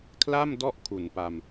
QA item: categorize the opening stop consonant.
aspirated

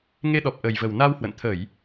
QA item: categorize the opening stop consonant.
implosive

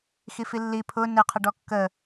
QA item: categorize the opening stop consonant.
aspirated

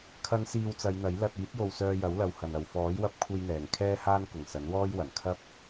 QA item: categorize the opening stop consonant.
aspirated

